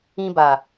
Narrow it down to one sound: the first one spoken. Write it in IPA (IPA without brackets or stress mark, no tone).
ĩ